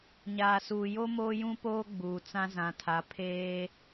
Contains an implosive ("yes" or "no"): no